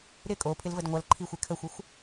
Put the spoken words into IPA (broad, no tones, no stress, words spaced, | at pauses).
ɾɪ kʼopʰɪlvəd ŋʷɐlǃʰixʷe kʰəxʷɪxʷ